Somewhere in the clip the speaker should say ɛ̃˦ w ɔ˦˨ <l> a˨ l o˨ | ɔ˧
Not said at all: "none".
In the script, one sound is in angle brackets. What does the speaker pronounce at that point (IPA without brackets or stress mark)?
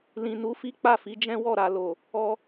ɾ